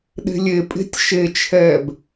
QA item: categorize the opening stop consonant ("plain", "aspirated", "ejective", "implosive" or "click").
implosive